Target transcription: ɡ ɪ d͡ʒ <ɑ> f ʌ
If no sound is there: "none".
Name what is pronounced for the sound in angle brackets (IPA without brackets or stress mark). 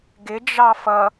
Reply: ɑ